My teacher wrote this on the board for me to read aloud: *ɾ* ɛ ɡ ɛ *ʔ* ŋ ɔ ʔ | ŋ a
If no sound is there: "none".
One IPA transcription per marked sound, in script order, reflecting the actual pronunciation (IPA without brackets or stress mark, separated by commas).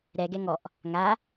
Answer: ɾ, none